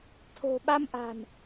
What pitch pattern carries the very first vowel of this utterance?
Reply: low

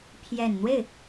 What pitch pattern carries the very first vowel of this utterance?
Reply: low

